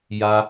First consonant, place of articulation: palatal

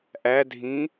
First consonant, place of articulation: glottal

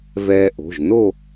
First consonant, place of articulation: labial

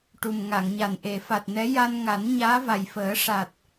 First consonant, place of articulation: retroflex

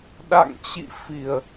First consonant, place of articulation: alveolar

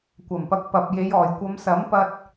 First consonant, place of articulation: velar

